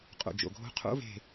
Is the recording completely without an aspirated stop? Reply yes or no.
no